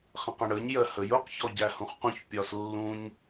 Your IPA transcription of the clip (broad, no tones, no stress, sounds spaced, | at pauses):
χ ə̃ q ə̃ ɽ ə ɲ j ɜ h ə j ʊ q ç ɔ ɟ æ h ũ χ q ũ ç pʲ ɒ s lː ũ ɲ